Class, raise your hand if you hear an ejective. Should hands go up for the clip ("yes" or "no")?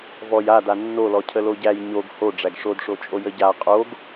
yes